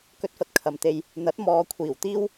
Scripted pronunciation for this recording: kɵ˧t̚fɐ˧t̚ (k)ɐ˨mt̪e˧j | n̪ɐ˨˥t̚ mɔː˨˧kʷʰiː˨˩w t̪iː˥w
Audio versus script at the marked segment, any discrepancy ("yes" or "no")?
yes